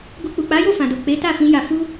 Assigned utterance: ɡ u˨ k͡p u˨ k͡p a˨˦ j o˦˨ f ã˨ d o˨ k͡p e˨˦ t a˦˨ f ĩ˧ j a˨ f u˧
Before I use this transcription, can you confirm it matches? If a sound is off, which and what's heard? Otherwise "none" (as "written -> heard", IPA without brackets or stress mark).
none